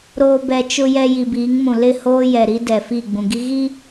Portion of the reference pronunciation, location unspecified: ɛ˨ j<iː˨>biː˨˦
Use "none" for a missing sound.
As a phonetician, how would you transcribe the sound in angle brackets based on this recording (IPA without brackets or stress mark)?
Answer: i˨